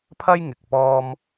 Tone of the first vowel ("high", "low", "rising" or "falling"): high